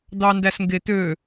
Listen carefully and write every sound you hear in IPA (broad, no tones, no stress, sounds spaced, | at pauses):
d̪ ɑ n d æ s ŋ ɡ e t̪ ø